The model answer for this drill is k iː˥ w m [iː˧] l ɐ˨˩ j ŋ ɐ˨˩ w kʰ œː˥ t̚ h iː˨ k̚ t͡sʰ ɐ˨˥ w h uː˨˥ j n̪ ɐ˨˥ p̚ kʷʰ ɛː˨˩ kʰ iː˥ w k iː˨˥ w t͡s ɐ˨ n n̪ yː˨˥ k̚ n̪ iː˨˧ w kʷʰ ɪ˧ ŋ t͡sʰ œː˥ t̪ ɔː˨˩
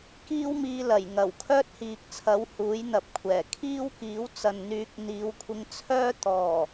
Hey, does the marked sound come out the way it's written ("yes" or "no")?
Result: yes